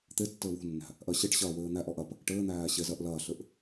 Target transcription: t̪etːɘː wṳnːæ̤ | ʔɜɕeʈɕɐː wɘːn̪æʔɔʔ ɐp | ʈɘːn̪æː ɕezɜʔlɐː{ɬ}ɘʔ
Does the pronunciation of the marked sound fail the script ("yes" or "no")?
no